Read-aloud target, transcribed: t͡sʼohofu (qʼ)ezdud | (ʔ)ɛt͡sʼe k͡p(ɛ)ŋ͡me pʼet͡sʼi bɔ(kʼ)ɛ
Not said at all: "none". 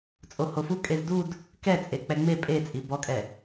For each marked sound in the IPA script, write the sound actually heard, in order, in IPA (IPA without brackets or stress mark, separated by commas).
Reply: kʼ, k, ɛ, kʼ